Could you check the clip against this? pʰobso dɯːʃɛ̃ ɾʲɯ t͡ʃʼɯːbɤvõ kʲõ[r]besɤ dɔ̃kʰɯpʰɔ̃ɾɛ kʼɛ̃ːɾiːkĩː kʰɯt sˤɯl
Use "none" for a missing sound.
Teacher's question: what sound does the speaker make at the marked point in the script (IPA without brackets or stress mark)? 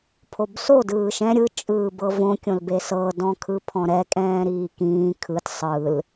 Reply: l